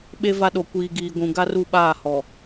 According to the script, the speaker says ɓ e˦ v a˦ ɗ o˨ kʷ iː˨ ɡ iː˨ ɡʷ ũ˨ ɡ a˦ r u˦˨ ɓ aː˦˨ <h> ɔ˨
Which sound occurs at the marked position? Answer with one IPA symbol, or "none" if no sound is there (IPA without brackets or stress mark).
h